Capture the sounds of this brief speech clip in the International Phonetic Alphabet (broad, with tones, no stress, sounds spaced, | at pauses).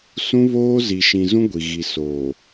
s ũ˦ β oː˦ z i˨ ʃ ĩ˨ z ũ˦ ɡʷ i˨ ɣ i˨ s oː˨